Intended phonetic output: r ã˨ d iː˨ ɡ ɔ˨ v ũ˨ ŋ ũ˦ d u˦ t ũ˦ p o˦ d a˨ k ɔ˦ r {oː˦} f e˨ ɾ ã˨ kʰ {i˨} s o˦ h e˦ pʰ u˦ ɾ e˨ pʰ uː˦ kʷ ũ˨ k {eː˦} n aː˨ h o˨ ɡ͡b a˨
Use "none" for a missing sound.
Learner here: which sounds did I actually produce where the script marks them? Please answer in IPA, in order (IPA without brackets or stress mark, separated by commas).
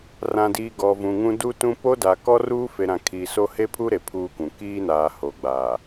uː˦, i˨, iː˦